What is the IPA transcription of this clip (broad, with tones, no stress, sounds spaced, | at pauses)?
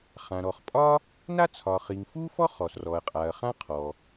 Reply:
χ ã˩ ɾ ɔ˩ χ pʼ ɒ˥ | n a˥ t͡sʰ ɒ˩ χ i˩ ŋ f u˥ f ɔ˥ χ ɔ˩ s r ɔ˩ ɐ̯ qʼ a˩ ɐ̯ χ ã˥ qʰ ɔ˩